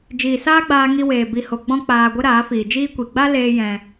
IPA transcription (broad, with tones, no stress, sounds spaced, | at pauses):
d͡ʒ iː˨ s aː˦ ɡ͡b aː˧ ŋ i˧ w eː˨ b i˨ h o˨ ɡ͡b ɔ̃˧ k͡p aː˨ ɡʷ ə˧ ɾ aː˨˦ f iː˨ d͡ʒ iː˦ kʷ i˨ ɡ͡b a˦ l eː˦ j ɛ̃˧